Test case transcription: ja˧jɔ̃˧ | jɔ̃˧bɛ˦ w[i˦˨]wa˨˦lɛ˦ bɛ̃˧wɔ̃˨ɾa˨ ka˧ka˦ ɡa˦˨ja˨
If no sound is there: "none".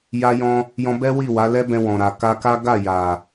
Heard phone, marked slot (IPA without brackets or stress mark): i˦˨